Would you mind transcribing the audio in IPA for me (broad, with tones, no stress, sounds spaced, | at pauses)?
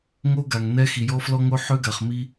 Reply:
ŋ o˦ ɡ a˨ ŋ n ɛ˦ x i˨ j ɔ˦ f l ɔ˦ ŋ o˦ ħ ø˦ ɡ a˨ χ m i˦